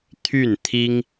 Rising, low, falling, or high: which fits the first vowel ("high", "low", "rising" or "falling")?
falling